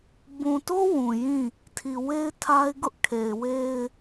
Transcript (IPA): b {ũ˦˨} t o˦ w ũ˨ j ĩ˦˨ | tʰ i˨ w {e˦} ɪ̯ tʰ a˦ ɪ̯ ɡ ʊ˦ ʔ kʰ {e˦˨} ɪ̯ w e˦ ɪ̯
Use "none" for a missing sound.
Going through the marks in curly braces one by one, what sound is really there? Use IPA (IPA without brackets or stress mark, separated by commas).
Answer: ũ˨, e˦, e˨